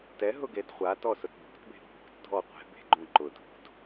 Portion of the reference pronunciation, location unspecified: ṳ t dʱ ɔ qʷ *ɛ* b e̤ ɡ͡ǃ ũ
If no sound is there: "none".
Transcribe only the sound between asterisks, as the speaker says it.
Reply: ɛ̤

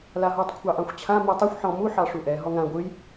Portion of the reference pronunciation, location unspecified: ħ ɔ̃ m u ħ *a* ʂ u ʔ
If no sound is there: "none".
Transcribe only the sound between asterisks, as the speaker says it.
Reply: ɑ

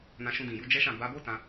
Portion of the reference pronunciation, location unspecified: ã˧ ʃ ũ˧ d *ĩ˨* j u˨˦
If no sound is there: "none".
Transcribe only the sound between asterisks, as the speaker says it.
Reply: ĩ˨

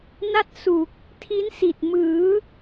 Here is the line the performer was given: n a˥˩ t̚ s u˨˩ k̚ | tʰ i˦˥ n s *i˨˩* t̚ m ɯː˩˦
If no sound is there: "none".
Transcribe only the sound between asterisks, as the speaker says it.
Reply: i˨˩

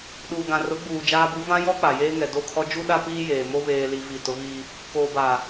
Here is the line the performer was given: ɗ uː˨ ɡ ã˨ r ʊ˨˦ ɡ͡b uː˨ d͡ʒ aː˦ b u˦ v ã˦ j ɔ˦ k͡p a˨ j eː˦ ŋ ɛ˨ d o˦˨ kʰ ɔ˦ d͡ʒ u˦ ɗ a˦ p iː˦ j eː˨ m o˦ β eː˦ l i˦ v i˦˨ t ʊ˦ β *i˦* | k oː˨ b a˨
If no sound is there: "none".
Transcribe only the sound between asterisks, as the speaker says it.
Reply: i˦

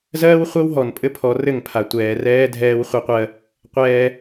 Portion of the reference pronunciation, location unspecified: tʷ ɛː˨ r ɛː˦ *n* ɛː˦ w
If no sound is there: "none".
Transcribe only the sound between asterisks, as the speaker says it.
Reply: dʱ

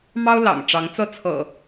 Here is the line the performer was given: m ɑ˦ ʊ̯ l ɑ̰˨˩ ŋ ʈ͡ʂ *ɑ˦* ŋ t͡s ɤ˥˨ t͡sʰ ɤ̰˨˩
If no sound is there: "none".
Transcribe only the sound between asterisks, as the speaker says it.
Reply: ɑ˨˦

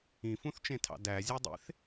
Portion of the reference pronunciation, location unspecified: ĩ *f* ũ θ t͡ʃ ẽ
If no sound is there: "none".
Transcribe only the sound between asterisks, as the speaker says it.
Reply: f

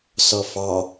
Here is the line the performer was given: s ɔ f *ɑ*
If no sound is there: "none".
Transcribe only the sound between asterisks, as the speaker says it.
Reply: ɑ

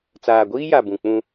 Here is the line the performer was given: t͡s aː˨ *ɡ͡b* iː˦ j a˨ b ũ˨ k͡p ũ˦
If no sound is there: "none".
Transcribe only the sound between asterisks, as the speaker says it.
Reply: ɡʷ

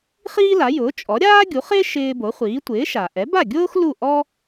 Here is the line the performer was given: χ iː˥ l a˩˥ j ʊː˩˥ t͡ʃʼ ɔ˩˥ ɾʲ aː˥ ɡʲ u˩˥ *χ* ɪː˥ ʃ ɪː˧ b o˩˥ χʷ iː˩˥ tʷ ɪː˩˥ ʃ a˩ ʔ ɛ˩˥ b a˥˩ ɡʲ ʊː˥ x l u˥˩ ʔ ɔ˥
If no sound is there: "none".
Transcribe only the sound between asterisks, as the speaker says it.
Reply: χ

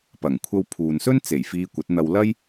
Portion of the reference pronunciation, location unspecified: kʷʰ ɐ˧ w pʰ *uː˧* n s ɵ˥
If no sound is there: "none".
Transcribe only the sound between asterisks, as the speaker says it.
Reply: uː˨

